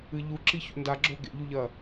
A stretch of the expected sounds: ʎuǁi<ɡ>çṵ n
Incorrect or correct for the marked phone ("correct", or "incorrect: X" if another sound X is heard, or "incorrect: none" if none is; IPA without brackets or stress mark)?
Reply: incorrect: none